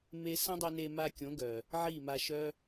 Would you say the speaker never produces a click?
yes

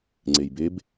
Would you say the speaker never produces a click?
no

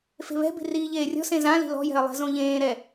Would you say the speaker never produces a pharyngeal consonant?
yes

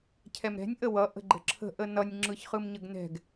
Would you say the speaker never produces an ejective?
yes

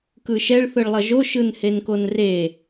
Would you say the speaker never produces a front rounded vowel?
yes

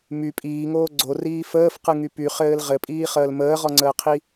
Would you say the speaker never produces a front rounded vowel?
no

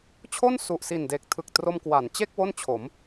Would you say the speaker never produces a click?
yes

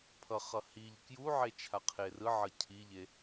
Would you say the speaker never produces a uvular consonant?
no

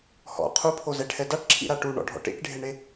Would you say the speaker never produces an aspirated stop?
no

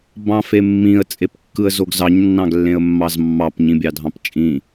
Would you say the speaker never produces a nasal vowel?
no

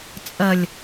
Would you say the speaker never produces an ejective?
no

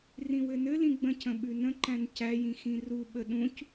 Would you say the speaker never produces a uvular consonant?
yes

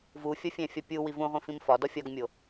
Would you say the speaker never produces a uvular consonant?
no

